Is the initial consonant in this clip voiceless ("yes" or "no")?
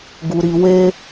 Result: no